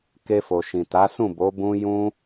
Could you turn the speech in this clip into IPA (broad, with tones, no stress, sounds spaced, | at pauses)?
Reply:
k e˧ f o˨ ʃ ĩ˨ t a˨˦ s ũ˦˨ b o˨˦ b ũ˦ j ũ˦